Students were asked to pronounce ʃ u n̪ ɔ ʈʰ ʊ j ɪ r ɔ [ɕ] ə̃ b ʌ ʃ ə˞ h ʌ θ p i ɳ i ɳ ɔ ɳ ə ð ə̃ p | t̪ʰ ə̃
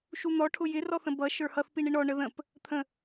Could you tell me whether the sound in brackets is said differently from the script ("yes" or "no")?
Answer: yes